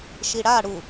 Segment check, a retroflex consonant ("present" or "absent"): present